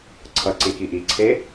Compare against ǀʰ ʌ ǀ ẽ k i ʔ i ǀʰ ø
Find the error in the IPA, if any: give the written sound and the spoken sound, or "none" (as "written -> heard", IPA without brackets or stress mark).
ø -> e